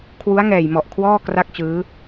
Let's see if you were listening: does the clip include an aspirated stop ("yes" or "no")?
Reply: yes